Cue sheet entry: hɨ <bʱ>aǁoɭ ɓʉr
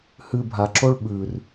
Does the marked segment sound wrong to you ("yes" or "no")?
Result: no